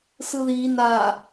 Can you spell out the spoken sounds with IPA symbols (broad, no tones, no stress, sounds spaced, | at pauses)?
s ɯ ð i n a